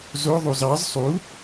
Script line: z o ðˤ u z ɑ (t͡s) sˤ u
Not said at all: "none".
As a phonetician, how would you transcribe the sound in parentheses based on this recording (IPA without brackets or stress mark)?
z